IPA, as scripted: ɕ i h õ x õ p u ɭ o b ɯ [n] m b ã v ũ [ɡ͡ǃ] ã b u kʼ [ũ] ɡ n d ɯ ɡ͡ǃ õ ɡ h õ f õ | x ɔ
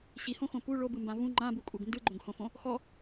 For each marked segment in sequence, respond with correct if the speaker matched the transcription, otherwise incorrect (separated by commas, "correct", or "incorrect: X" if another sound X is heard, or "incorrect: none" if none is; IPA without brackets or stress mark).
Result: incorrect: none, incorrect: ŋ͡ǃ, incorrect: u